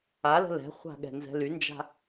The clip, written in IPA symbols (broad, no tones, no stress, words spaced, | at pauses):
alə̤ lɛ̤χʷa̤ɠɛ̤nzɛ̤ lynd͡ʒa̤